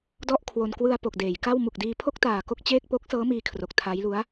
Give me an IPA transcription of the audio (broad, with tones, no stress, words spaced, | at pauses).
dɔ˥˩ʔkʰwo˧n kwɯ˧a̯ po˨˩k̚deː˩˦jka˥˩w mu˨˩k̚diː˧ pʰo˥˩k̚taː˨˩ ko˥˩k̚t͡ɕeː˥˩k̚ po˦˥k̚sɤː˦˥miː˧kʰro˨˩k̚ tʰa˦˥jlu˦˥a̯